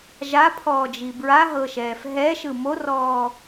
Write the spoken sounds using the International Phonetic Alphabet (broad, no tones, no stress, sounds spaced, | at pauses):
ʒ a pʰ ɔː d͡ʒ i b ɹ a ɦ ɤ ʃ ɛː f ɦ ɛ ʃ ɯ m o r ɔː